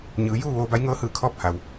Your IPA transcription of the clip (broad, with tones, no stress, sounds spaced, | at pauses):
ɲ ɯː˩˧ j uː˥˨ ʋ oː˧ b a˧˥ j ŋ ɤː˧˥ h ɯː˧˩ kʰ ɔː˥˨ p̚ h a˩ w